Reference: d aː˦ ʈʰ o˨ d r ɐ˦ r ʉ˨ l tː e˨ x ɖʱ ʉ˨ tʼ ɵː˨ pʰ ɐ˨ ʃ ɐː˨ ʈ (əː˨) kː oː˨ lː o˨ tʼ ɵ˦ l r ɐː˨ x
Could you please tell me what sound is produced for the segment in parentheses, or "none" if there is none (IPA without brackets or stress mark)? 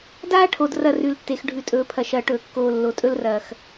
ɵː˨